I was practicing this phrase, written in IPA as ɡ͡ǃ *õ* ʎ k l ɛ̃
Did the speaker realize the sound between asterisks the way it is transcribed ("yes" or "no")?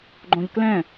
yes